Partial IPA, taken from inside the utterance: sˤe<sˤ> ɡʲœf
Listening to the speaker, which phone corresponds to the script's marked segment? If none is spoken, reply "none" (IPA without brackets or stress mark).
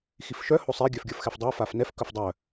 none